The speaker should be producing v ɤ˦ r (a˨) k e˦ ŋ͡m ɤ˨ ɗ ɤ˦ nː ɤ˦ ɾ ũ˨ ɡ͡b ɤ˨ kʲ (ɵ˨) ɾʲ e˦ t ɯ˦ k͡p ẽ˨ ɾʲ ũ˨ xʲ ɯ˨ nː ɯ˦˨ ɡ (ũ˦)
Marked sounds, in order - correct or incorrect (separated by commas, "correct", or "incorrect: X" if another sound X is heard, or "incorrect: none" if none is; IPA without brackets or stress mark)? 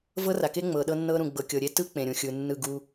correct, incorrect: ɤ˨, incorrect: u˦